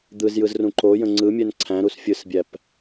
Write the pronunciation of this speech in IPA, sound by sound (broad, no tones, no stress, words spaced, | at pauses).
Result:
d̪ɯzjɯzrũ ǃojə̃ ŋ͡ǀɯmʲɛn ǀʰæ̃ɾus fʲɯsbʲæp